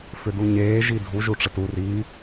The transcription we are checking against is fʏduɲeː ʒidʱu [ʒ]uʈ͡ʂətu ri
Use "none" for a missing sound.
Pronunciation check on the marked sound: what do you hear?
ʒ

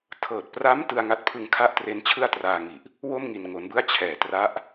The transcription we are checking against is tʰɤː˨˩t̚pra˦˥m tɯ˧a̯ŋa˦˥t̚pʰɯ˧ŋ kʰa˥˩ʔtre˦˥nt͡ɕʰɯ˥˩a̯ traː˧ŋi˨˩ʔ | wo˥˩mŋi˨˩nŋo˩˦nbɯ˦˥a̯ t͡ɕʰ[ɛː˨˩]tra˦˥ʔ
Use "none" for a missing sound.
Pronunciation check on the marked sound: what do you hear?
ɛː˨˩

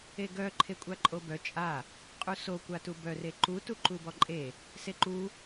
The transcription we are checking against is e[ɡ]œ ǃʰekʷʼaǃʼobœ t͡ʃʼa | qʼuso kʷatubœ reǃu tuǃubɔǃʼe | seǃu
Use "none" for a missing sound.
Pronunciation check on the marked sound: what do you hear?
ɡ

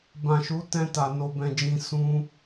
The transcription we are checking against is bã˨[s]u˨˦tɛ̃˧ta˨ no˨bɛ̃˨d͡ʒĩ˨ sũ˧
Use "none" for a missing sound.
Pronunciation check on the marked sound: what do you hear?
ʃ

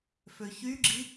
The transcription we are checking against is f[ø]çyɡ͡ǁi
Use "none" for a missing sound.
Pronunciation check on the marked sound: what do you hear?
ø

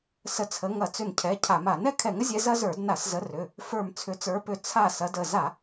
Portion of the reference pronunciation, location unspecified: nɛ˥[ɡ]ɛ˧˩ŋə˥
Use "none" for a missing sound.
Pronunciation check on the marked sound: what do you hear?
kʰ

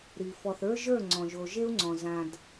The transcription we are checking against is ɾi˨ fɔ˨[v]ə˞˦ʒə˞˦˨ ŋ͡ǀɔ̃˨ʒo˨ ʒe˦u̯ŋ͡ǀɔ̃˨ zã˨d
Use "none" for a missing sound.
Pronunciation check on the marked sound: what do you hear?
θ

